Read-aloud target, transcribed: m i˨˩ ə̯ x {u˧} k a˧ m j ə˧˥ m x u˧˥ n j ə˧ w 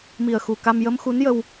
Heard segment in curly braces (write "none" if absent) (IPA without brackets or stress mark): u˨˩